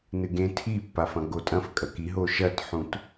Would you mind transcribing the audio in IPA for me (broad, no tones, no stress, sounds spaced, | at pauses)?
n ɨ ɡ ẽ tʰ i pː a f ɐ̃ ɡ o tʼ ɐ̃ f kʼ ɐ k i ɦ o ʃ ɐ t ħ ũ t